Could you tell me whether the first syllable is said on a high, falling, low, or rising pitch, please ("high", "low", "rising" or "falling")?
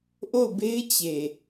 falling